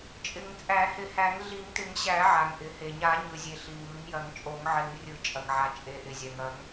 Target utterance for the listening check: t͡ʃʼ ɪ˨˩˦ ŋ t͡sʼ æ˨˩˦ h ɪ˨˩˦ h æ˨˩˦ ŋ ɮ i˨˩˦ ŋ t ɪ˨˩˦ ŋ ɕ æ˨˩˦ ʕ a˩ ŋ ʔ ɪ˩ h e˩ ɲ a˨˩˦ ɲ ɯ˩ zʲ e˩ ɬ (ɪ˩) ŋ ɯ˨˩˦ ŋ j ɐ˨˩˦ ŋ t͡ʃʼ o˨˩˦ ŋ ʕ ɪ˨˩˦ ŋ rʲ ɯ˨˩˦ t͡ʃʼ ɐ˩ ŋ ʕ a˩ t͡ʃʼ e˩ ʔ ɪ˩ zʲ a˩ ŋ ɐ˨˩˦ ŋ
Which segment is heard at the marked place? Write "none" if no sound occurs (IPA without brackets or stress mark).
i˩